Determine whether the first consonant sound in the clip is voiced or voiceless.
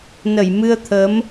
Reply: voiced